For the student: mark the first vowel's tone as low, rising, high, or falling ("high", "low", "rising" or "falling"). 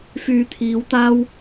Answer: low